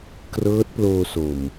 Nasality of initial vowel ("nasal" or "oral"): oral